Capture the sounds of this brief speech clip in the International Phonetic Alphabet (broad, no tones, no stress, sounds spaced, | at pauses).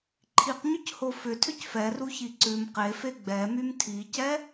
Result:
ǃʰ i q ɲ ʏ c h o f ʏ tʰ ʏ c f ɛ r u ç i ǀ ʉ m q e f e ɡ͡b ɛ m y m tʰ i c ɛ